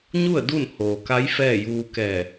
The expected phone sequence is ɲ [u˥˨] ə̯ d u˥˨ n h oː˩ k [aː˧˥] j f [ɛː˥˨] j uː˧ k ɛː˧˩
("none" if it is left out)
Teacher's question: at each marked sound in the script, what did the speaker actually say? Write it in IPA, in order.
u˥˨, a˧˥, ɛː˥˨

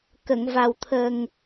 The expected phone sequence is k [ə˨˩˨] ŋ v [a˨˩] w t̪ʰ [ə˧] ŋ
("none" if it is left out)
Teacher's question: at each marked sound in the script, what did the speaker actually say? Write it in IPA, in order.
ə˨˩˨, a˨˩, ə˨˩

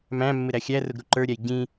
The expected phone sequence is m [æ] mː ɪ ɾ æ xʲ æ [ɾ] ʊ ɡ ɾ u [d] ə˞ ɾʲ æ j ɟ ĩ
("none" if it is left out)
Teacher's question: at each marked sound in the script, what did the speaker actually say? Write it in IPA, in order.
æ̃, r, ǃ

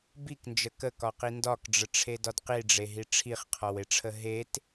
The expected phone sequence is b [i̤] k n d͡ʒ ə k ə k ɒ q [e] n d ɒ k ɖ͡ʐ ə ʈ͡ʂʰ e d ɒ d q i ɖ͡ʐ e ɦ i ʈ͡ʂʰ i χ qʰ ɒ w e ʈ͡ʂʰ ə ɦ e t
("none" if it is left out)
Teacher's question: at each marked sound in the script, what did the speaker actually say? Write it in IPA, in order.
i, i

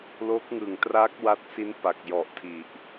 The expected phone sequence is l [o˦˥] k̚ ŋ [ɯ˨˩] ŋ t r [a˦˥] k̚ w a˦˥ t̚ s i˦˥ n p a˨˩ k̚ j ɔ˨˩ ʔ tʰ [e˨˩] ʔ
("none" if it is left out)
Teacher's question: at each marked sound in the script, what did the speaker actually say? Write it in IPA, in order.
o˦˥, ɯ˨˩, a˦˥, i˨˩

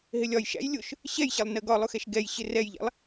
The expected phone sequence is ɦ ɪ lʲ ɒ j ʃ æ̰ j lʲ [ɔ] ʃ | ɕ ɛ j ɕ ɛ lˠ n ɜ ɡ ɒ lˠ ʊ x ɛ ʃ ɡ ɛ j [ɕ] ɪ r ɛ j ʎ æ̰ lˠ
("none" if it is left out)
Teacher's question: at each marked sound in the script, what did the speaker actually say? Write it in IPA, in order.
ʊ, ɕ

